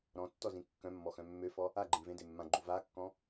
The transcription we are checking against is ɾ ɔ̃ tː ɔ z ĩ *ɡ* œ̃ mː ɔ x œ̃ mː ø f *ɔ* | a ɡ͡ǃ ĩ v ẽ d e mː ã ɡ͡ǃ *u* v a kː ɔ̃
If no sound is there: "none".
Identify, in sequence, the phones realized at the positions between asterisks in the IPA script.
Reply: kː, ɔ, u

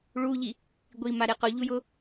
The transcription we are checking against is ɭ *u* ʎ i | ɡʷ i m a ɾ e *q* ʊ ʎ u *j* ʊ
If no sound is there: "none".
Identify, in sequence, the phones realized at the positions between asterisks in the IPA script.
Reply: u, q, j

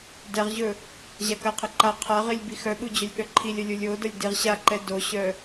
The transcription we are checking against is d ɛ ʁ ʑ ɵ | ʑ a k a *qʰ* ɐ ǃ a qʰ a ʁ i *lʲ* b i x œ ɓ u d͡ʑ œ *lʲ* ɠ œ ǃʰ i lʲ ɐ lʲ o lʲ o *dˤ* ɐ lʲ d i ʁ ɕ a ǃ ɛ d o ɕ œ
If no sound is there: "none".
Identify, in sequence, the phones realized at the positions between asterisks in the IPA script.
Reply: qʰ, lʲ, lʲ, d

